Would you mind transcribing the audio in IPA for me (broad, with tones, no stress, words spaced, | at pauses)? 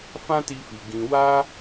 fã˦ti˧fi˨ ɡĩ˧ wa˦